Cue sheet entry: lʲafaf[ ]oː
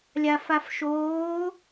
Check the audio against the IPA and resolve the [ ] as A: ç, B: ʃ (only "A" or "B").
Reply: B